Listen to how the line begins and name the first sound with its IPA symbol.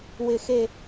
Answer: w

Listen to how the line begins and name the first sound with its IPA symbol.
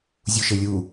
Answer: zʲ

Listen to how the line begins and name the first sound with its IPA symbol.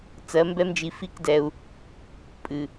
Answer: t͡s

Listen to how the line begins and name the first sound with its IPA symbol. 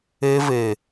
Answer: e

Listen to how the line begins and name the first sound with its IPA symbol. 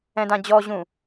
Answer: ɛ̃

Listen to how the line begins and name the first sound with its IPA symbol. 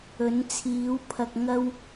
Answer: ɵ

